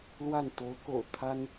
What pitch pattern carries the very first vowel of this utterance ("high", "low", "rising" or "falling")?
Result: falling